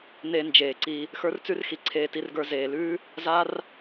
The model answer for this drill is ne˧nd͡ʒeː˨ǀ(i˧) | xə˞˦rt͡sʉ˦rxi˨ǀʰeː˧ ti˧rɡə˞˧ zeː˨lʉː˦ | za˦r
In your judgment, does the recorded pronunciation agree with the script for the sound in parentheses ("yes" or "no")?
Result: yes